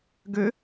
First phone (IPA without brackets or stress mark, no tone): ɡ